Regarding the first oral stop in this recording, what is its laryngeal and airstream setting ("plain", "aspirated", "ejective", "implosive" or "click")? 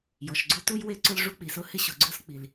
click